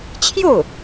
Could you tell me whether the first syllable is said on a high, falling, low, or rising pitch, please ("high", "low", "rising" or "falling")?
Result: falling